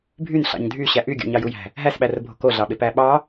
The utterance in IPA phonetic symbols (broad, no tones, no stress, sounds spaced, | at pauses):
bʱ y n ɬ ɑ̰ ɲ dʱ y ɕ æ ʔ y ɡʲ o̰ ɲ ɑ j u j æ̤ | ɦ æ s ɓ æ r bʱ o̤ k o ɮ ɑ ɓ e p æ ɓ ɑ